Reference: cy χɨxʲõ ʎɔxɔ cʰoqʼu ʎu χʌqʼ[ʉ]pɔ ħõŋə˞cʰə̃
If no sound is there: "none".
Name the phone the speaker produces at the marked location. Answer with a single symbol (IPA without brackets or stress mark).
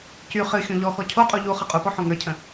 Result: u